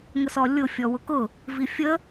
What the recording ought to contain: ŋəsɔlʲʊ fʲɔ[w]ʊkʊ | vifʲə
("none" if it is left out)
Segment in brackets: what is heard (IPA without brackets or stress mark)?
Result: w